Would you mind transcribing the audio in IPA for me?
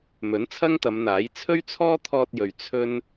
m ɵ˨˥ n t͡sʰ ɐ˥ ŋ t̪ ɐ˨˧ m n̪ aː˨˥ j t͡sʰ ɵ˥ ɥ t͡sʰ ɔː˥ t̪ʰ ɔː˧ t̚ j ɵ˨ ɥ t͡sʰ ɵ˥ n

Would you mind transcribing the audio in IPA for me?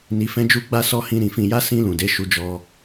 n i˧ f ɛ̃˦ d͡ʒ u˦ ɡ͡b a˦ s ɔ˦ h ĩ˧ ɾ ĩ˨ f ĩ˨ j a˧ s ĩ˧ l ũ˨ d e˨˦ ʃ u˧ d͡ʒ ɔ˧

